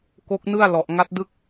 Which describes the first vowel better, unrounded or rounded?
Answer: rounded